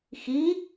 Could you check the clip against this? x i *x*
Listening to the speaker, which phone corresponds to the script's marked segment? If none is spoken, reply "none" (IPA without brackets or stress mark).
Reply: none